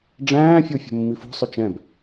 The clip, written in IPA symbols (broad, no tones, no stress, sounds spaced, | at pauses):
ɖ͡ʐ æ̃ː fʲ o fʲ o̤ mː i f o̤ sˤ ʏ t͡ʃ ɛ̃ b